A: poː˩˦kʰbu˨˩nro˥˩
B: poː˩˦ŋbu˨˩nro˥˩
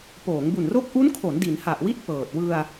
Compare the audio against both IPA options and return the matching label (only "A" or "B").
B